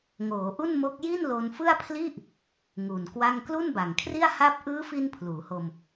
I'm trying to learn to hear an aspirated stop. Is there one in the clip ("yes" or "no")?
yes